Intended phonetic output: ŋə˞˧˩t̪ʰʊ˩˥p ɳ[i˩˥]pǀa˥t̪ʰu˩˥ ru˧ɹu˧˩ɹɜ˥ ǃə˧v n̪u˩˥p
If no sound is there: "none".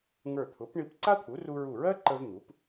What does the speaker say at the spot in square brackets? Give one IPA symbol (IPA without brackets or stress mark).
i˧